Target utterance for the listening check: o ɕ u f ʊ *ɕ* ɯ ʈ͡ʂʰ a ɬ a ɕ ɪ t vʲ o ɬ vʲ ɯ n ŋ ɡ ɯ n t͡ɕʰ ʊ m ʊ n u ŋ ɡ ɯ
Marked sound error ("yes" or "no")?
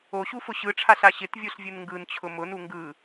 no